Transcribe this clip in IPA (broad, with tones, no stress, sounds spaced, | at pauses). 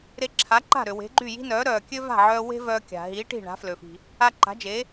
ɾ e˧ ǁʰ a˩˥ ǃ a̤˥˩ ɾ ø˩ w e̤˩˥ ɡ͡ǃ y˥˩ j i̤˥ n œː˩˥ ɾ œː˩ kʲ ø˥ v a̤˥˩ ʕ œː˧ w e̤˥ v œː˧ kʲ a̤˩ ɦ iː˩˥ ʈ i̤˥˩ ɳ a̤˩˥ f l ø˩ f i̤˩ | a˧ ǃ a̤˩˥ d͡ʒ eː˩˥